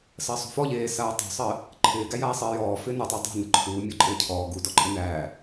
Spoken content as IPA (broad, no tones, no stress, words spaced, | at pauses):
sɜsˤṳfɔʎeː saːtˤṳsˤɜ | ǃʰɪːɡæjaː sˤɪːjɔː fɪːnutˤɪː dˤæ̤nɪ ǃʰuː mʲɔǃʼɪːcʰɔː ɡu dɔǃʼɪnæː